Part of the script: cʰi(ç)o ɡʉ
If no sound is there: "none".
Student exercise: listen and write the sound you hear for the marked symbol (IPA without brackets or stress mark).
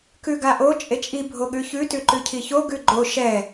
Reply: ç